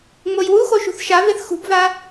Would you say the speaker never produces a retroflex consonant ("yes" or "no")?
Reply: yes